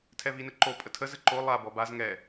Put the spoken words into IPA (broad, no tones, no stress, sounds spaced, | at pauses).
tʰ ɛ v i n ɘ ǃ o pʼ ə tʰ ə z ɘ ǃ o lˠ a b ɔ b a z ŋ ɛ